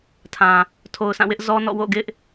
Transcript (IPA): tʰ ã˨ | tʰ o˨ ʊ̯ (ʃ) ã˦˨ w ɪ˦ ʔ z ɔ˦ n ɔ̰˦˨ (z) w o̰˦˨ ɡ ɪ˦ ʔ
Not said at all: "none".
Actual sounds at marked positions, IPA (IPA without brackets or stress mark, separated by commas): s, none